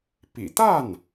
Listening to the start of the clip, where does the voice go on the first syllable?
low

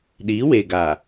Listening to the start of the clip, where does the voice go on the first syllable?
rising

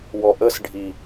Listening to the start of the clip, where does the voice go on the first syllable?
low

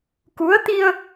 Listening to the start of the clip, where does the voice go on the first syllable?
rising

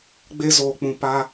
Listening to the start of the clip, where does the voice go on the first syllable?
high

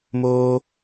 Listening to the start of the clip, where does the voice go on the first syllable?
high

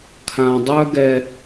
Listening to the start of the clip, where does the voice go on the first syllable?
low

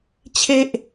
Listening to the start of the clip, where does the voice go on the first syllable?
high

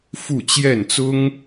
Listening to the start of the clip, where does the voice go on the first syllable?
falling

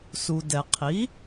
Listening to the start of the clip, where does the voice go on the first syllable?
low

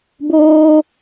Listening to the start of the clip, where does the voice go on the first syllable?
high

